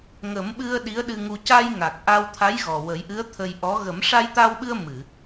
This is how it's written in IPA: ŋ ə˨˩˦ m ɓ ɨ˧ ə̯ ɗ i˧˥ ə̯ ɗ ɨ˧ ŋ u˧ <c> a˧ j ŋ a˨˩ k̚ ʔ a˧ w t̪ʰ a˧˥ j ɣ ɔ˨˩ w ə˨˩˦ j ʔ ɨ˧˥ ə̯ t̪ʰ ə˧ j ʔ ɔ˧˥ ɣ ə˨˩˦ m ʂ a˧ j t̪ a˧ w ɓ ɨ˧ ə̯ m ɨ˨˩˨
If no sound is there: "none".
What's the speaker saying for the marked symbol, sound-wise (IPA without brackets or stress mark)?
c